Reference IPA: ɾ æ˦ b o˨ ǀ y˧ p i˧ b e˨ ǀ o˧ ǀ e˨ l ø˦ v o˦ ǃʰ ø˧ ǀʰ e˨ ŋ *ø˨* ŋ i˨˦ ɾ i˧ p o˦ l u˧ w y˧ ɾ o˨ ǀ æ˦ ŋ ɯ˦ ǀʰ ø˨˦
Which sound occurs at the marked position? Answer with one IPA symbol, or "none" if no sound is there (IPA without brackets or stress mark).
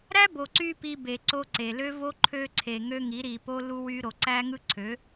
ø˧